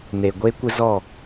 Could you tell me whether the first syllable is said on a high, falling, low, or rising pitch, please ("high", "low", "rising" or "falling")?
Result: low